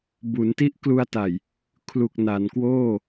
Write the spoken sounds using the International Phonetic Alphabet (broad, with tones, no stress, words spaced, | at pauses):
bu˩˦nti˦˥ʔklu˧a̯ta˨˩j | kʰlu˨˩k̚na˩˦nkwoː˥˩